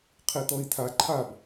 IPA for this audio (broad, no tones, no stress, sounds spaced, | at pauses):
qʰ i t ɔ i̯ tʰ a ǃʰ a b